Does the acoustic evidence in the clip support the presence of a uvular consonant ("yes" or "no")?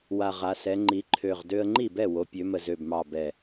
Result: yes